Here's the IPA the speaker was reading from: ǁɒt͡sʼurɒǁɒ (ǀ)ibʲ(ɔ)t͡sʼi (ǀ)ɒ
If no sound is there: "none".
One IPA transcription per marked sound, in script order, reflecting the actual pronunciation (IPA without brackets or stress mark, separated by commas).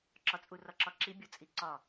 ǁ, o, ǀ